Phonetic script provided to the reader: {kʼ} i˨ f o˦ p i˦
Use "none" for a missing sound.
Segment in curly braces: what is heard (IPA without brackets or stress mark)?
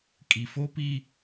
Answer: kʼ